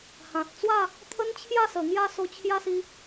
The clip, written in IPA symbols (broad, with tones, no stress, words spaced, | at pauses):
hã˨t̚ t͡swa˥˧ | t̪ʰə˦nt͡ɕʰja˥˧sə˨˩ ŋja˥˧so˧ t͡ɕʰja˦si˧